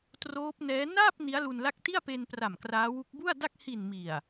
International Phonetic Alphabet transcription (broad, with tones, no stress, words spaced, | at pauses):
troː˦˥p̚nɛː˦˥ naː˥˩p̚ ni˦˥a̯lu˧nla˥˩k̚ ti˥˩a̯pe˧npra˨˩m kraː˦˥wu˦˥k̚ bu˥˩a̯da˥˩k̚ hi˨˩n mi˨˩a̯